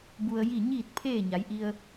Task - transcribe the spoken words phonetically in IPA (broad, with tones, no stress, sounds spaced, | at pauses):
b u˧ ə̯ j i˥˨ ɲ iː˥˨ t̚ pʰ eː˥˨ ɲ a˩˧ j ʔ i˧ ə̯